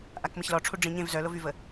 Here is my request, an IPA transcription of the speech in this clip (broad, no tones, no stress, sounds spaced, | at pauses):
ʔ a k m ə ç l ɔ ʈ͡ʂʰ u ɖ͡ʐ ĩ ɲ ẽ v z œ l o v y v ə